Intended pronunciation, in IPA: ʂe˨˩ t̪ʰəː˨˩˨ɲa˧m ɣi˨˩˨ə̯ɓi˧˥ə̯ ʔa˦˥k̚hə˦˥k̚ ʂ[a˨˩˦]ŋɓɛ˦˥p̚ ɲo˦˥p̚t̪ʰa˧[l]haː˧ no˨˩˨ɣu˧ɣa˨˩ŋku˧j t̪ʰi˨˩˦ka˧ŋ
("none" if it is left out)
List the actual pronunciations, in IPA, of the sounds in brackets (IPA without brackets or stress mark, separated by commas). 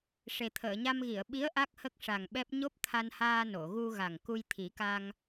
a˨˩, n